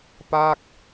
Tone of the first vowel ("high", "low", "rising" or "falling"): falling